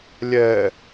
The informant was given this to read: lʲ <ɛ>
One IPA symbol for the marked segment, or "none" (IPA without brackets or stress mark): ɛ